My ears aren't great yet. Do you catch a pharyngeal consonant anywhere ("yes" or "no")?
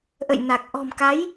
no